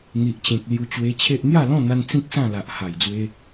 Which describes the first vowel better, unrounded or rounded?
unrounded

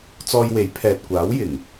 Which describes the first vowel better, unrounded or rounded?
rounded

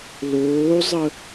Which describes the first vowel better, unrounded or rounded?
rounded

